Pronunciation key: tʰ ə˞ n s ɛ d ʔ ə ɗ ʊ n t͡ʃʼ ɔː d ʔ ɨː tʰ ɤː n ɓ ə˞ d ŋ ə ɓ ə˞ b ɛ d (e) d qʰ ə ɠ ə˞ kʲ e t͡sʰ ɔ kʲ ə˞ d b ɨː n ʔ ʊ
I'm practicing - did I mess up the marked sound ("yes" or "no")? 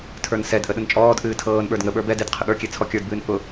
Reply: no